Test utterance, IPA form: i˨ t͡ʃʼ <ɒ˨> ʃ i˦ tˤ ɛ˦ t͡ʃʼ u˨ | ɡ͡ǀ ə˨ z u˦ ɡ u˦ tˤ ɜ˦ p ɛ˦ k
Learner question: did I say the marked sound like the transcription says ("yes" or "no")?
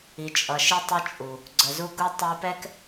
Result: no